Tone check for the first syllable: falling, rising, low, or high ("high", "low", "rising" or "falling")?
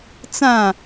falling